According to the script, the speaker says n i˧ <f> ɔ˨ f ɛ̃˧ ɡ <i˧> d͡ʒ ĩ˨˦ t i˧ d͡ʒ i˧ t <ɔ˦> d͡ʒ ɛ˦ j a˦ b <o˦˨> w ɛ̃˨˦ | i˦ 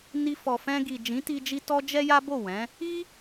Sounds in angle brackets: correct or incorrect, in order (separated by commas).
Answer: correct, incorrect, correct, correct